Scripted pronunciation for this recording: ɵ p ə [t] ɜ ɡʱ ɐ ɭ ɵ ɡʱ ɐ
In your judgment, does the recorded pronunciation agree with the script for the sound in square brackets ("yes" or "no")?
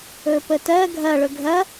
yes